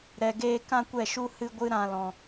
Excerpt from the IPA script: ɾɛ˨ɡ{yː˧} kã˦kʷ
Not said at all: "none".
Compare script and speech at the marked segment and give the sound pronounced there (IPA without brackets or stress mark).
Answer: eː˧